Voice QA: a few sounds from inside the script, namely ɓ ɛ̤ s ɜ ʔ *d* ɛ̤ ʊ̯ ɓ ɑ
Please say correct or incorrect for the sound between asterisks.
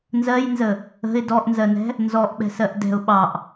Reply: correct